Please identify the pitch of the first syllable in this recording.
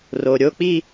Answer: low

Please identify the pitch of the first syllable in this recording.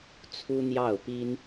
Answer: high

